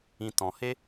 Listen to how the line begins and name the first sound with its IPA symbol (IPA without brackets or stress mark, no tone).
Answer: ĩ